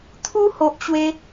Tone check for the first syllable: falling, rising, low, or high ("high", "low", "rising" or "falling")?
high